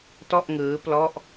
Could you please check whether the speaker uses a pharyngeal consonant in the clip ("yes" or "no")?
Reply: no